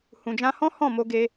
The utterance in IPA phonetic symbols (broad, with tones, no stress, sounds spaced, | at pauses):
h ũ˨ d͡ʒ ã˧ h ɔ̃˦ h ɔ̃˦˨ m o˧ ɡ e˧